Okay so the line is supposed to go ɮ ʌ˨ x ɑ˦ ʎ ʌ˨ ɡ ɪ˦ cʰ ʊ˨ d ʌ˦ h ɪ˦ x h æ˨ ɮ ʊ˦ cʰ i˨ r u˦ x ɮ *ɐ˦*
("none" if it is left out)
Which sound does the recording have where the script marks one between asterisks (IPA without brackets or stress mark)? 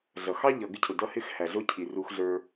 ə˞˦